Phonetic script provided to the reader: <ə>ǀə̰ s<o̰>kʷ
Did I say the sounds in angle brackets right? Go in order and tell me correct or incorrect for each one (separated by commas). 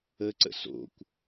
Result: correct, correct